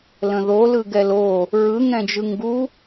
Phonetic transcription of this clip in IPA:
l ə̃ ð o l ɯ ɡ ɛ l o | ɹ ɯ ŋ ɛ̃ d͡ʒ ɯ ŋ ɡ u

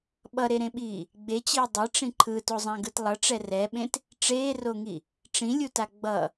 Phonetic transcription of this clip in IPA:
ɓ ʌ ɾ e ɾ ẽ ɓ iː | ɡ͡b e t͡ɕ iː dˤ e ʈ͡ʂ ĩ ǃʰ ɯ t o zˤ ã ɡ ɯ t lˠ ʌ ʈ͡ʂ ɛ r ɛ ɓ ẽ t | ʈ͡ʂ eː r o ŋ i | ʈ͡ʂ ĩ lʲ u t a ɡ͡b ʌ

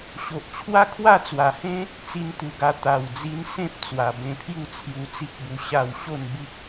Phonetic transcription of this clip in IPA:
ɕ o˨ ʔ t͡ɕʰ w a˦ kʰ w a˥˧ t͡s w a˨˩ h ẽ˦ | t͡s i˧ n t̪ u˨˩ ɡ a˧ t̪ a˨˩ w d͡z i˧ n s ẽ˦ p̚ t͡s w a˨˩ b ẽ˧ pʰ j u˥˧ t͡sʰ j u˧ t͡s i˦ k̚ b u˧ ɕ a˥˧ w ɕ o˥˧ n b i˦ k̚

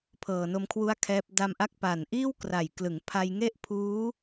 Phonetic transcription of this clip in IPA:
pʰ ɤː˨˩ n o˦˥ m kʰ w u˥˩ a̯ kʰ ɛː˦˥ p̚ d a˧ m ʔ a˦˥ k̚ p a˨˩ n ʔ iː˥˩ w k r a˨˩ j k l ɯ˩˦ ŋ pʰ a˧ j ŋ e˥˩ ʔ pʰ uː˦˥

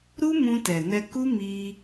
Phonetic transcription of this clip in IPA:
ɾ u˦ m ũ˧ t ɛ˨ n ɛ˧ k u˦ m i˧

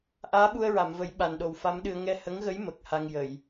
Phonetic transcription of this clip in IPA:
ʔ aː˧˥ ɓ u˧ ə̯ ɹ a˨˩˨ m v ə˨˩˦ j ɓ a˨˩ n ɗ o˨˩ w f a˧˥ m ɗ ɨ˧ ə̯ ŋ ɛ˧ h ə˧˥ ŋ ɣ ə˧˥ j m ə˨˩ k̚ h a˧ ŋ j ə˨˩˨ j

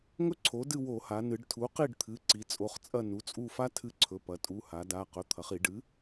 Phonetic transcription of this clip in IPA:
ŋ ɵ˥ ǀʰ o˩˥ d ɨ˦˨ w o˧˩˧ h a˩˧ n ɨ˩˧ ɖ tʰ u˩˥ q i˦˨ ɖ t̪ʰ ɨ˩˧˩ ǀ i˩˧ t͡sʼ o˩˧˩ χ t͡sʼ ɐ˦˨ n u˩˧˩ t͡sʼ u˦˨ f a˥ tʰ ɨ˦˨ ǀʰ ɵ˩˧˩ p ɐ˩˧ tʼ u˩˧˩ h a˩˧ d a˩˧˩ q ɵ˩˧˩ t̪ʰ ɐ˩˧ χ i˧˩˧ ɖ ɨ˩˥

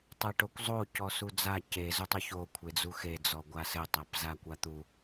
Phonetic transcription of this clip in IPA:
tˤ e ʈ o kʷ zˤ o c ɔ s u d͡z a c e z u tˤ u ç o kʷʰ e d͡z u x e d͡z ɔ ɡʷ a s ɘ tˤ a p z a kʷ a t̪ u

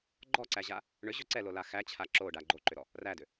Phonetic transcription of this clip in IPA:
ɡ͡ǃ ɔ ǀ æ ʑ a | ɳ ʏ ʑ ø ǀ ɛ l o l a x æ t͡ɕʰ a ǁ o ɖ a ɡ͡ǃ o ǃ ʏ ɾ ɔ | r æ d ʏ

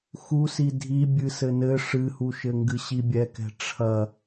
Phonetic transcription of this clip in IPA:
x u s i dʱ i bʲ ɨ s ɘ n ɘ ʂ ɨ h u ʃ ɘ ŋ ɡ ɨ ɕ i bʲ ɛ k ɛ̤ ʈ͡ʂʰ ɐ

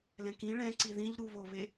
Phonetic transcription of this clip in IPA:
l ɛ̃ k ĩ ɭ ɛ̃ ǀ i ð ĩ ʎ ɾ u β o β e

